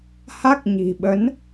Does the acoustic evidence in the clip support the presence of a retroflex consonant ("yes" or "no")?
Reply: no